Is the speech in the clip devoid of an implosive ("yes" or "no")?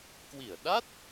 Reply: no